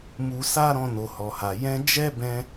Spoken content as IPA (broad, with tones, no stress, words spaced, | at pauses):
mu˧sa˦ɾɔ̃˧ no˨hɔ˨ha˨ jɛ̃˧ d͡ʒɛ˦bɛ̃˧